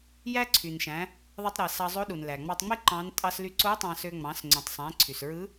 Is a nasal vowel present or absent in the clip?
present